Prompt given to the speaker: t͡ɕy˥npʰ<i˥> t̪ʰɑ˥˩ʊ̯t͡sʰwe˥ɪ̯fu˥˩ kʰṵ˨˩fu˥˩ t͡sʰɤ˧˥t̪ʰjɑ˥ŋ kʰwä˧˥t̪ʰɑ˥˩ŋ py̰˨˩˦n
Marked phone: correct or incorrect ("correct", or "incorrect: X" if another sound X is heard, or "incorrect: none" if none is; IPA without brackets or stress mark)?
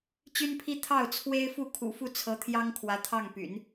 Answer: correct